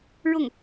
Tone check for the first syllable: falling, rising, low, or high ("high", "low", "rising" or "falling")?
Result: falling